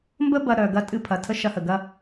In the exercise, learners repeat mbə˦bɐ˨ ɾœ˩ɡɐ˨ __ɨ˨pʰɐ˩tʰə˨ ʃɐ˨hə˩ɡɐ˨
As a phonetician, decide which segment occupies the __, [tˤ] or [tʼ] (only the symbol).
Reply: tʼ